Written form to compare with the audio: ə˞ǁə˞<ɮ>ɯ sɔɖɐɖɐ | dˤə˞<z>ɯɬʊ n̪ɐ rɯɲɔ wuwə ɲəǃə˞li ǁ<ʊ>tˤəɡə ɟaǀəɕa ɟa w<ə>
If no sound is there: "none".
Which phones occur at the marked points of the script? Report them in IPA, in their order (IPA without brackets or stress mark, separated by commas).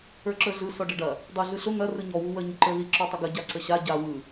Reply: ɮ, ɮ, ɔ, ɯ